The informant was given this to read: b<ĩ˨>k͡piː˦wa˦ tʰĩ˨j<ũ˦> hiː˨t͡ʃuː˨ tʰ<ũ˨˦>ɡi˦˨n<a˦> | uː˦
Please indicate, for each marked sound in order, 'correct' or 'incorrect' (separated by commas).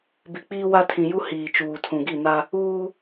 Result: incorrect, incorrect, incorrect, correct